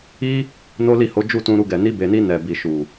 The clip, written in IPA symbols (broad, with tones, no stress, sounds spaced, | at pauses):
i˦ | n o˦ l i˦˨ h o˨˦ d͡ʒ u˦˨ t ũ˧ ɾ u˧ ɡ ɛ˨ n i˧ b e˨ n i˧ n ɛ˨ b i˨ ʃ u˨